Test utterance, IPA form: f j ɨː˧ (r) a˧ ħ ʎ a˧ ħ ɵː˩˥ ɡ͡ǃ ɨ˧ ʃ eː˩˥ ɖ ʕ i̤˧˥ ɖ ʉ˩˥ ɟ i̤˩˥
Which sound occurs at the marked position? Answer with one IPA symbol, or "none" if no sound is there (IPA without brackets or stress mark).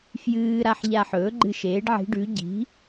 ɾ